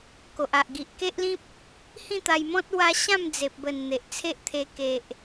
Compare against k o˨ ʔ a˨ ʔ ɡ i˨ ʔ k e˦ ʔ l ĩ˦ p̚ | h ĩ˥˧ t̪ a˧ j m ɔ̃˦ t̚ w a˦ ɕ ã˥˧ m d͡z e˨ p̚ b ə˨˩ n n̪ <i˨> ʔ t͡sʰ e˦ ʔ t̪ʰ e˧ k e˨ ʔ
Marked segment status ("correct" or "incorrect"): incorrect